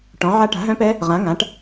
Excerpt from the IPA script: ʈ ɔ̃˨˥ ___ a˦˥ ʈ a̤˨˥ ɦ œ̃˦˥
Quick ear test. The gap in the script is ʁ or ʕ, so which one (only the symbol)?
ʕ